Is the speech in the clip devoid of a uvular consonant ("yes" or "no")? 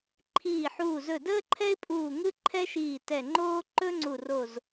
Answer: yes